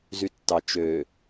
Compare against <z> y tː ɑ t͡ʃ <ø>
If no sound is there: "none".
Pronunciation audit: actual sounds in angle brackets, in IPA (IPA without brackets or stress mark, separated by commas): z, ø